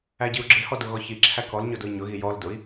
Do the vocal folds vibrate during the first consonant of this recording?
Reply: yes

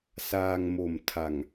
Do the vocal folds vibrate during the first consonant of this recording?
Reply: no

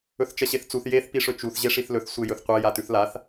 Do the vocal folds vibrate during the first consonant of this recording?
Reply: no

